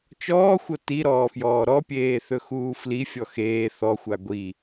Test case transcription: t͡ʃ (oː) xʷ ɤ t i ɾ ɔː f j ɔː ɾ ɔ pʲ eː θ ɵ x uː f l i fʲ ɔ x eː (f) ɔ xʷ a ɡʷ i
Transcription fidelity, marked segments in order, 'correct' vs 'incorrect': incorrect, incorrect

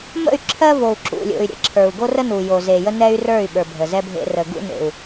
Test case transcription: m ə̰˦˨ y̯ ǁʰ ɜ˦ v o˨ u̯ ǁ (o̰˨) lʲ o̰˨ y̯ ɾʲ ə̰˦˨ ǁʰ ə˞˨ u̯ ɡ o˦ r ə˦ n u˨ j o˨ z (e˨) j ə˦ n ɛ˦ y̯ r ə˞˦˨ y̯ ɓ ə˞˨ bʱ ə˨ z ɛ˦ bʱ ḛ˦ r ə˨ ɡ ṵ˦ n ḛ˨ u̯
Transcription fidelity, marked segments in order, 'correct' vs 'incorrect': incorrect, correct

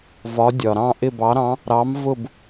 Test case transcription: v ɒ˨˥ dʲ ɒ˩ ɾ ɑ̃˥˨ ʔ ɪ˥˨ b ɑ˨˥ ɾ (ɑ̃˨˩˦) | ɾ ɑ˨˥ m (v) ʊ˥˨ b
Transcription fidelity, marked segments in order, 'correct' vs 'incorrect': incorrect, correct

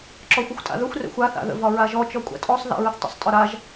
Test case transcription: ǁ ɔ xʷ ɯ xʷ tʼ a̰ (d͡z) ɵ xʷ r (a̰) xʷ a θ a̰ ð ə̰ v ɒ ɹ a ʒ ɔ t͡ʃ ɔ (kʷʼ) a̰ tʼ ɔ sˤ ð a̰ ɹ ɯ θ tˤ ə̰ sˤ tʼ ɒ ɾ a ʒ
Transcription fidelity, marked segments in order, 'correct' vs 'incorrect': incorrect, incorrect, correct

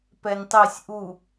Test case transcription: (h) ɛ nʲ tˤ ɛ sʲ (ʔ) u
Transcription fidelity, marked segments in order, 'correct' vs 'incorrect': incorrect, correct

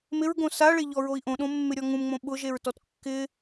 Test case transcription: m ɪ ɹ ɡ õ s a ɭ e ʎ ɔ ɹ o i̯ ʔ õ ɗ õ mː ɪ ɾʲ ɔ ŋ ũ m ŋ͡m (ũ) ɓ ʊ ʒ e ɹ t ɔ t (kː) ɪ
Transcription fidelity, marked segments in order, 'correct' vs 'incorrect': incorrect, correct

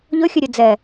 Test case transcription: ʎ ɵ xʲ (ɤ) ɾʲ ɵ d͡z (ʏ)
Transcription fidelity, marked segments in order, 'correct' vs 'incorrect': incorrect, incorrect

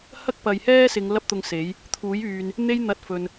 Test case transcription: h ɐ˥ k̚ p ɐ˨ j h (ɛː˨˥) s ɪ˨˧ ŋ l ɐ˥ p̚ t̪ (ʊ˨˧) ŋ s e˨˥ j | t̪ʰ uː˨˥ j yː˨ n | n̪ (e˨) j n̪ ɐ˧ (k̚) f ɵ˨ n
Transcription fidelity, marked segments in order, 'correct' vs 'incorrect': incorrect, incorrect, incorrect, incorrect

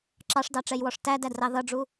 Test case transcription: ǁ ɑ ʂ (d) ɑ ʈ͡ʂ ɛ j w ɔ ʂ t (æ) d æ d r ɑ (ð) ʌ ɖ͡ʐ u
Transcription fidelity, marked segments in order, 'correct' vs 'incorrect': correct, correct, correct

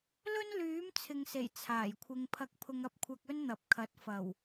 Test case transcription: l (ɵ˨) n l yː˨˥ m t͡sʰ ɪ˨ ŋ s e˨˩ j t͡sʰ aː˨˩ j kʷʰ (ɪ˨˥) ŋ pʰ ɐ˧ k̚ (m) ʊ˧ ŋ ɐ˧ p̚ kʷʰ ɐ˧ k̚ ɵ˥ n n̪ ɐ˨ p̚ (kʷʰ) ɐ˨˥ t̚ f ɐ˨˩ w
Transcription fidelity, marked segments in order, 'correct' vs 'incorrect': incorrect, incorrect, incorrect, incorrect

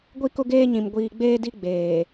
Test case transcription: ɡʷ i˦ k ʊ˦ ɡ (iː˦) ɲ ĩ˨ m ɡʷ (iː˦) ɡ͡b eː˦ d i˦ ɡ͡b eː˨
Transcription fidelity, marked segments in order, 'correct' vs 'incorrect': incorrect, incorrect

